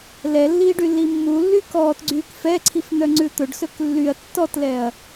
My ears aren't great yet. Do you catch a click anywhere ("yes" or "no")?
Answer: yes